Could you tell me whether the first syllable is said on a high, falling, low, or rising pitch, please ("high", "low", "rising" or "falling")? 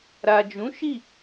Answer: low